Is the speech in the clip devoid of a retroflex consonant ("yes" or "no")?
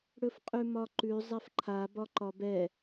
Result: no